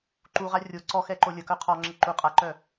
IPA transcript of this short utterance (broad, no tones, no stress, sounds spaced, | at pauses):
ǃ u ʁ a rʲ o ǀ ɔ x ɛ ǃ o lʲ ə k œ qʰ ɔ ŋ͡ǁ ə ǃ u qʼ a ǃ œ